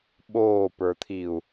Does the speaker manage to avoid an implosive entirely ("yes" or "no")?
no